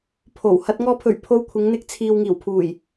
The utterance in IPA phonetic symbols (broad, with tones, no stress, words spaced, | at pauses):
pʰo˨˩w hɐ˧t̚ ŋɔː˨pʰɵ˨˩ɥ pʰo˧wkʷʰɪ˨˧ŋn̪ɪ˧k̚ t͡sʰiː˨wŋiː˨˩wpʰuː˨˩j